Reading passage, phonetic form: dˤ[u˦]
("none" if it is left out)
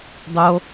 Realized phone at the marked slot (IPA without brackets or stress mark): o˦